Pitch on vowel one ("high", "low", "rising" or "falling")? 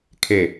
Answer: low